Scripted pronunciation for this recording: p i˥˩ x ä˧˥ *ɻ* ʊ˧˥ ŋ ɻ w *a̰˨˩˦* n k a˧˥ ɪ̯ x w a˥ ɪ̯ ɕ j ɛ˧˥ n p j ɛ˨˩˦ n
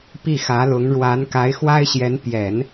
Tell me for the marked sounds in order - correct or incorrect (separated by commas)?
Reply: incorrect, incorrect